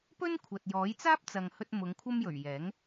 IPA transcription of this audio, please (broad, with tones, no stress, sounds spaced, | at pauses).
p ɵ˥ n kʷʰ ɐ˨ t̚ j ɔː˨˥ j t͡s aː˥ p̚ t͡s ɐ˨ ŋ h ɵ˧ t̚ m ʊ˨˧ ŋ kʷʰ ɐ˥ m j ɵ˨˩ ɥ j ɛː˨˥ ŋ